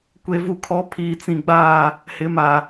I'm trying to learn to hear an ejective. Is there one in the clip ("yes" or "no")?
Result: no